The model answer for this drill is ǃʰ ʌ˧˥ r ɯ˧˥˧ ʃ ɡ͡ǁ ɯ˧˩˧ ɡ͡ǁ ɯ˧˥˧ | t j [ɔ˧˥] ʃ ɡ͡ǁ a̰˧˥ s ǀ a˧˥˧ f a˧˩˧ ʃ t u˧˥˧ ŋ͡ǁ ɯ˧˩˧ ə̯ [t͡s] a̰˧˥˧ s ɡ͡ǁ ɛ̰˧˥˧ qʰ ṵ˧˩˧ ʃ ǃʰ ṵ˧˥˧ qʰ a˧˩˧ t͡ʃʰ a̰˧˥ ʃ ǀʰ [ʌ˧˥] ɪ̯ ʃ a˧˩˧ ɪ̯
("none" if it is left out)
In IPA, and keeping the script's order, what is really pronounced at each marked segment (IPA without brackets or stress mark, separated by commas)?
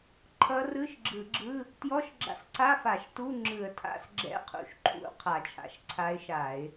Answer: ɔ˧˥˧, tʰ, a˧˥